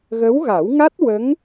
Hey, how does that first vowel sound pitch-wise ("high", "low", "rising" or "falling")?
rising